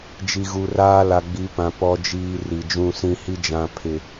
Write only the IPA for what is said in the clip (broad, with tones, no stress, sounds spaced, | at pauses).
d͡ʒ i˨ ɣ u˨ r aː˦ l a˨ ɡ͡b i˨˦ p ã˨ p ɔ˨ d͡ʒ iː˨ r i˨ d͡ʒ ũ˦˨ s ĩ˨ h i˦ d͡ʒ ã˨ pʰ ɪ˨